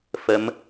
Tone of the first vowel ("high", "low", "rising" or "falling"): rising